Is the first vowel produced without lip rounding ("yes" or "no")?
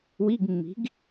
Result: yes